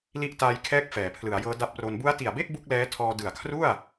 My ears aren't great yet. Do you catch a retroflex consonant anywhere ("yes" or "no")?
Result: no